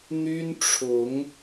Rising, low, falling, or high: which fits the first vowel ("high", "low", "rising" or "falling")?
high